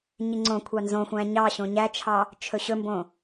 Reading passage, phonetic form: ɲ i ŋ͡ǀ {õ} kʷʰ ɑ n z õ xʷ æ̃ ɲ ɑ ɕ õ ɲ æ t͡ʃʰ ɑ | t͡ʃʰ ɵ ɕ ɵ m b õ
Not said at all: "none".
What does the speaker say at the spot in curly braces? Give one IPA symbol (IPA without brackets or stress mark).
õ